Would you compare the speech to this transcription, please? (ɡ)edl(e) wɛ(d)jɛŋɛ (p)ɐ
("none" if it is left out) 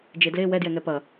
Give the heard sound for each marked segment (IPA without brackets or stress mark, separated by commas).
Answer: d͡ʒ, e, d, p